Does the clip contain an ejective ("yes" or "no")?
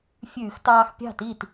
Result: no